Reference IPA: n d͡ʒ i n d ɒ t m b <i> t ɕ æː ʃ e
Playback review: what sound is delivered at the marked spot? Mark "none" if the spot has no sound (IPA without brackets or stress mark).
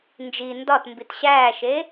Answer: i